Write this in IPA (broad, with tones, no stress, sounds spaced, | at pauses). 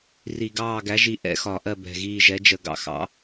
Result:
r i˧˩˧ ɡ ɑː˦˨ ɡ æ˨˥ ʒ i˨˥ ʔ ɛ̰˦˨ x ɒ˧˩˧ ʔ ɜ˦˨ b ɛ̤˨˩ ɣ iː˦˨ ʒ ɛ˨˥ d͡ʒ ə˧˩˧ ɡ ɑ̰˦˨ x ɑ̰˨˥